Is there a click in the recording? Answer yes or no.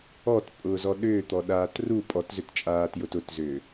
no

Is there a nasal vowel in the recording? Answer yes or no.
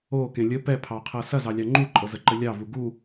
yes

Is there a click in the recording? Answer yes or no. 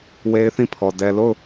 no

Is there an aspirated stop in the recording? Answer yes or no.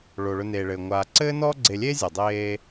no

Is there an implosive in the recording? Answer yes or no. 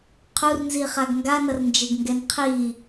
no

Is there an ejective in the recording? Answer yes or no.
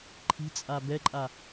yes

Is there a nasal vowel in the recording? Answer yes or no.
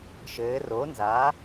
no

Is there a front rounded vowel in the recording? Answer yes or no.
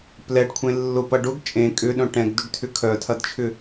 yes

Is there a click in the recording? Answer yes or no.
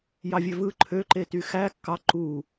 yes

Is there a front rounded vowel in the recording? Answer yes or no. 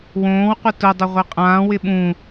no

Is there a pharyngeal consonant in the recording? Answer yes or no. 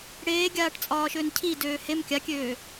no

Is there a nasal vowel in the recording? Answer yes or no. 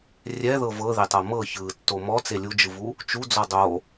no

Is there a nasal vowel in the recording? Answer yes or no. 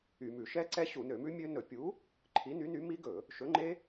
no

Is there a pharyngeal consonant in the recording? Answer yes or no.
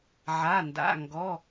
yes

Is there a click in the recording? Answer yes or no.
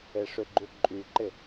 yes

